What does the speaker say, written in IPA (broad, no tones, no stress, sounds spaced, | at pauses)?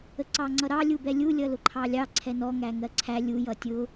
ə ǀ ɑ ŋ͡ǀ ʌ ɾ ɑ lʲ u b ɛ lʲ u lʲ ʌ l ʊ ǃʰ ɑ lʲ ɑ ǀʰ ɛ n ɔ ŋ æ ŋ ɜ ǀʰ æ lʲ u j ʌ tʲ ʊ